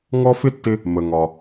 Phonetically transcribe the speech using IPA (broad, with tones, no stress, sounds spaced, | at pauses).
ŋ ɔ˥ f ɪ˥ tː ɪ˧ | m ə˩ ŋ ɒ˩